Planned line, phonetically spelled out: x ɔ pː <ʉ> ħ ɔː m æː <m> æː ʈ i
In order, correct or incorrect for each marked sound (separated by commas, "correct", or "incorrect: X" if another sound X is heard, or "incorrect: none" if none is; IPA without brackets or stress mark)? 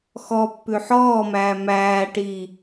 correct, correct